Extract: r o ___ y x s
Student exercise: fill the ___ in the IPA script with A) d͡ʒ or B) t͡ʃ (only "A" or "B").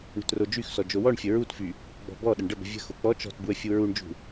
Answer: A